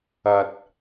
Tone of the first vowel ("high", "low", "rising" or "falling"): low